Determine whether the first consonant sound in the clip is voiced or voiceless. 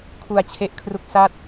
voiceless